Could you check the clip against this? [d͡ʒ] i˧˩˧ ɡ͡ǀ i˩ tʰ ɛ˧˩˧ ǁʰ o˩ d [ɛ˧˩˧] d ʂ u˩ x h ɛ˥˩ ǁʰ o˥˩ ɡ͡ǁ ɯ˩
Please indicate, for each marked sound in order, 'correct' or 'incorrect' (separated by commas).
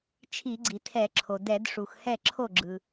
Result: incorrect, correct